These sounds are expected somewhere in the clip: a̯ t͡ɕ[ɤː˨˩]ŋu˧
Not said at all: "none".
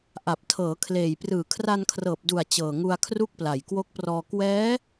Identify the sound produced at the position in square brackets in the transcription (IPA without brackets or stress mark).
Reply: ɤː˨˩